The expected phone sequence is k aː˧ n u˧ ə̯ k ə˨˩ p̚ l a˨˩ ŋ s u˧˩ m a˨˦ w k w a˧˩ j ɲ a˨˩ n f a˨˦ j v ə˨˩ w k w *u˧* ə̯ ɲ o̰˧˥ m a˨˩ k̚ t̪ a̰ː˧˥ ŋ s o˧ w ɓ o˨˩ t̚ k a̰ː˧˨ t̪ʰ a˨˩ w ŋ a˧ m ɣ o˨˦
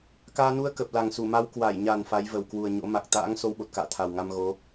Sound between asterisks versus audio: incorrect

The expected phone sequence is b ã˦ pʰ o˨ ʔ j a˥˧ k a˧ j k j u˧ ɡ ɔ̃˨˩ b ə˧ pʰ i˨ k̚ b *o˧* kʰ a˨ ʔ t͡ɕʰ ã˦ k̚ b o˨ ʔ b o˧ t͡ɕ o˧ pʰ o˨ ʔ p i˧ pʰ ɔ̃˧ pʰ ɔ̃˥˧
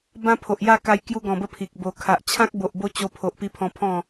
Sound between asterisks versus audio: incorrect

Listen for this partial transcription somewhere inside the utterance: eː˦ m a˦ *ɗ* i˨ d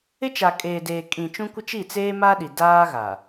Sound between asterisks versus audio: correct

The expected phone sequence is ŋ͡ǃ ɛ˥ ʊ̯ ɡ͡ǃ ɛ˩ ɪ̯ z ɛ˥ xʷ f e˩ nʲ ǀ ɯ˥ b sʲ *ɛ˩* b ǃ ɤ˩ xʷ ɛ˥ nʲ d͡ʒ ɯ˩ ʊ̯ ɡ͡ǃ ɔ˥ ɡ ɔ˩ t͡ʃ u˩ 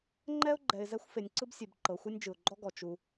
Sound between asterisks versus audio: incorrect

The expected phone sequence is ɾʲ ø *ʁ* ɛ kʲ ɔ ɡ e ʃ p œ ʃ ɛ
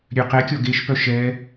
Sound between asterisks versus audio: incorrect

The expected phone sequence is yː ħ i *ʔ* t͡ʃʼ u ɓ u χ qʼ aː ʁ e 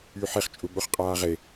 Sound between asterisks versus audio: incorrect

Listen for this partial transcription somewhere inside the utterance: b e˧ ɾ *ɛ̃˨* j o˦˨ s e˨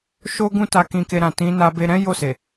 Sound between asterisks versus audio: incorrect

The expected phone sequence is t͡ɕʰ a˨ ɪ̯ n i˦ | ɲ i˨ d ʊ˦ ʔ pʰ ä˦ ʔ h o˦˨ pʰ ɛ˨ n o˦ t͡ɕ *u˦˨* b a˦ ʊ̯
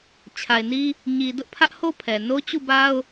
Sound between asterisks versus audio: correct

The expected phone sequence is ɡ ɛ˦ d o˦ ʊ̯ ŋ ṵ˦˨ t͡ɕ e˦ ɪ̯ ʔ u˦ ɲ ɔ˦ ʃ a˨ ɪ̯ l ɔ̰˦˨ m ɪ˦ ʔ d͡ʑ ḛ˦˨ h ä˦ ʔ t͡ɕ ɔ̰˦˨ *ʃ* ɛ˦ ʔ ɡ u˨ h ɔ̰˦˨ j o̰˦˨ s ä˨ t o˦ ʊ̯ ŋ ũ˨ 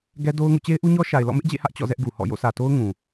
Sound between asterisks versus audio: incorrect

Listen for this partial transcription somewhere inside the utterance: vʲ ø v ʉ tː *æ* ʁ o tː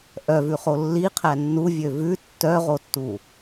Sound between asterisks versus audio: incorrect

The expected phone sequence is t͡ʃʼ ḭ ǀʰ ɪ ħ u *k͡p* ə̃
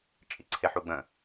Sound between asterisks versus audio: incorrect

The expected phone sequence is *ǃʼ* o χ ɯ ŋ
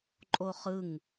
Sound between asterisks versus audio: correct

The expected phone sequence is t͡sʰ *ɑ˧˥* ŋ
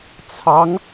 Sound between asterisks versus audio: correct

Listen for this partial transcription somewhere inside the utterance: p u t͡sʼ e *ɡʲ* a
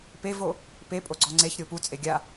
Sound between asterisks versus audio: correct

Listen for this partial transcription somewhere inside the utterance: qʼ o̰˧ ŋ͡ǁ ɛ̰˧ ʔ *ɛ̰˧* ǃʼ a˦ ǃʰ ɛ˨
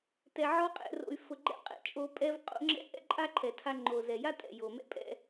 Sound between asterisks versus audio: incorrect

